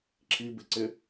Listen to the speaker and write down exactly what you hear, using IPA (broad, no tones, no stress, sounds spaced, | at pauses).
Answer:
ǁʰ i b ɪ ǀ ɪ